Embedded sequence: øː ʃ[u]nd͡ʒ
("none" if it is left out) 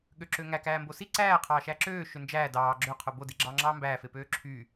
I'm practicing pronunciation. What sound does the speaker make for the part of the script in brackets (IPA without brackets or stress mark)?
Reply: ø